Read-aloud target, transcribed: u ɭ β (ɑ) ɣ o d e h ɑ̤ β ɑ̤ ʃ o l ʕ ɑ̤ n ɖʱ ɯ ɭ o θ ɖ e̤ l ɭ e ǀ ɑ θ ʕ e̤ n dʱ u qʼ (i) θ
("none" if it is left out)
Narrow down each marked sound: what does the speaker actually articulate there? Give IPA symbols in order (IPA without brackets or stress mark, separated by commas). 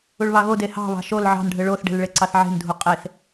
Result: ɑ, e